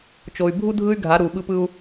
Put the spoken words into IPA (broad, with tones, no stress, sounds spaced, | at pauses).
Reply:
t͡ʃ o˨ y̯ bʱ u˦ dʱ ɯ˦ y̯ ɡʱ a˨˦ ɾ u˨ ɓ ɯ˦ p ɯ˦ u̯